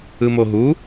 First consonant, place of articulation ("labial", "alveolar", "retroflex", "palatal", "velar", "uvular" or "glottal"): labial